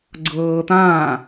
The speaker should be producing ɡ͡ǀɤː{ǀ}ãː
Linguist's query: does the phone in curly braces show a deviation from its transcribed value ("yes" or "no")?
yes